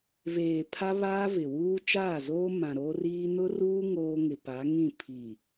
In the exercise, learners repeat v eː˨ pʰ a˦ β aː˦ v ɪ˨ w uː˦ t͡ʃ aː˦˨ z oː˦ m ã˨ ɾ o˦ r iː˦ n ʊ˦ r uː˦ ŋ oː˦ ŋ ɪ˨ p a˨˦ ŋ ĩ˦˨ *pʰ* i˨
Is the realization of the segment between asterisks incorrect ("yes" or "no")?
no